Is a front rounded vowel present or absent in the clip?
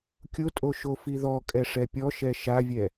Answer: absent